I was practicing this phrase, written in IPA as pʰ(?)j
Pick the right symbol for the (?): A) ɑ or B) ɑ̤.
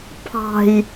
B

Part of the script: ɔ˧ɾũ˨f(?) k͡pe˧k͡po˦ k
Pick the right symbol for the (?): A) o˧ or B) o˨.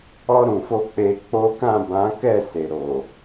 A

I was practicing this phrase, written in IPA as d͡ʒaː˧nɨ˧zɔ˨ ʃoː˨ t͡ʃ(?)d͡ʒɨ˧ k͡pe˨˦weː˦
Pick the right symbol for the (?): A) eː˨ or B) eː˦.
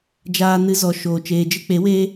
A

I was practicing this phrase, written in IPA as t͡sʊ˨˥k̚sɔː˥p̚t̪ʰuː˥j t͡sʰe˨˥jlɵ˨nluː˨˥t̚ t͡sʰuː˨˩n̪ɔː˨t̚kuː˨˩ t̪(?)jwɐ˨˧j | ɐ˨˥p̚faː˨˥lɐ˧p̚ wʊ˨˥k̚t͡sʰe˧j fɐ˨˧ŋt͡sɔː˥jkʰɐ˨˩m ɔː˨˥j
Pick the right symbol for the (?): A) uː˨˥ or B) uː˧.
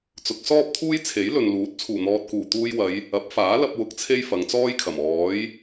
B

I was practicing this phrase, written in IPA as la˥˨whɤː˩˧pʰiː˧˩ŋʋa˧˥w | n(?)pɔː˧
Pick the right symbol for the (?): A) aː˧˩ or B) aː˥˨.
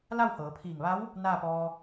B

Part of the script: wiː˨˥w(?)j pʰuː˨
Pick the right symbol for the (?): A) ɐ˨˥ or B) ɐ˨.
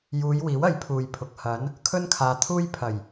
A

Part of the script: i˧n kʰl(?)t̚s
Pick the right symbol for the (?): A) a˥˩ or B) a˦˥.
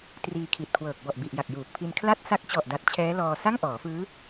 A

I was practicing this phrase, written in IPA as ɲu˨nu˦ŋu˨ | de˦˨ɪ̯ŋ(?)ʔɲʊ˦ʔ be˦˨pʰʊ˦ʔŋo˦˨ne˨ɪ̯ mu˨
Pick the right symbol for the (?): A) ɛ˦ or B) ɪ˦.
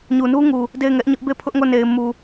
A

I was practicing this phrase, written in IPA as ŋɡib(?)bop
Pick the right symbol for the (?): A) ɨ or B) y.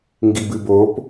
A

